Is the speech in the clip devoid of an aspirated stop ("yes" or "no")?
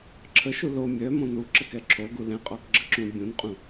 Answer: no